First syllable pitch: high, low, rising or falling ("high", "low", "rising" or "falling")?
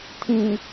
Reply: low